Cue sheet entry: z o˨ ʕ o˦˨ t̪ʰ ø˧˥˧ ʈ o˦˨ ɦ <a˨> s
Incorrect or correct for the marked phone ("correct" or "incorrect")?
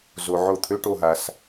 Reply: correct